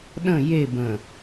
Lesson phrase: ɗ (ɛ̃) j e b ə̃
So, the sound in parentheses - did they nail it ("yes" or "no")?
no